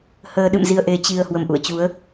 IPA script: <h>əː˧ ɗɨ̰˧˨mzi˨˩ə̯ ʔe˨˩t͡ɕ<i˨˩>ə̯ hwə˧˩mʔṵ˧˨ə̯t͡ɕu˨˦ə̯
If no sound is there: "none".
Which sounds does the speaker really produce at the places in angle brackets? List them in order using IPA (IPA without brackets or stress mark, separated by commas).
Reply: h, i˨˩